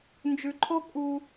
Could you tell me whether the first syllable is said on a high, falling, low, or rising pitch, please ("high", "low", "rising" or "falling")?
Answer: low